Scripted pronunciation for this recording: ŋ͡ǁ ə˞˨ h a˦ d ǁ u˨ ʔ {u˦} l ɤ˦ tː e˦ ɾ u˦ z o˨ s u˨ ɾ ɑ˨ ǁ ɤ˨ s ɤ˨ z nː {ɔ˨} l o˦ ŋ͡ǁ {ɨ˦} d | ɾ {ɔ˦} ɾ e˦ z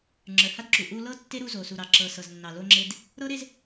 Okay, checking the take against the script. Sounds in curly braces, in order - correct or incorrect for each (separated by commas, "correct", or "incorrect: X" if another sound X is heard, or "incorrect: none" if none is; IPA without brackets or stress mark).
correct, incorrect: ɑ˨, incorrect: e˦, incorrect: ɤ˦